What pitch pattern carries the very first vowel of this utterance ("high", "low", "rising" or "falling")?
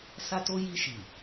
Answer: high